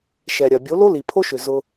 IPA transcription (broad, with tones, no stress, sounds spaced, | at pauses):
ʃ ɛ˨ ɾʲ ɐ˨ bʲ o˨˦ l o˦ l i˨ pʰ o˦ ʃ ʏ˨ z ʊ˧